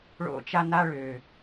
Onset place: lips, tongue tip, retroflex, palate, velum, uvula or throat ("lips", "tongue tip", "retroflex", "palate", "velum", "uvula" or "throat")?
retroflex